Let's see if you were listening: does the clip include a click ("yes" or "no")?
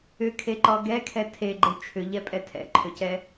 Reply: yes